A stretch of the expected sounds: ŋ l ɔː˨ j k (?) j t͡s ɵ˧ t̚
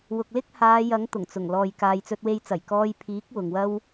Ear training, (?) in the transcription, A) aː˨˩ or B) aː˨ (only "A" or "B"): B